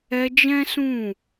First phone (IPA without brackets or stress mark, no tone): ɛ